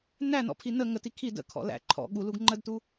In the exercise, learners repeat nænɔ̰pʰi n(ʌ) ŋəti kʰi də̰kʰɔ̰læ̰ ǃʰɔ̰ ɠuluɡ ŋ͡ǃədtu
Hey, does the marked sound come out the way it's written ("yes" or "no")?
no